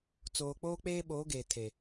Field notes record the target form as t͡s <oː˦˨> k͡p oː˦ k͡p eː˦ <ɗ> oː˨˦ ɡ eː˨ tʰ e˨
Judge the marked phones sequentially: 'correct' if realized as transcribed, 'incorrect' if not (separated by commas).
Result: incorrect, incorrect